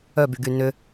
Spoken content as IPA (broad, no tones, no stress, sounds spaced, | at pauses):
œ b y ɡ y n ʏ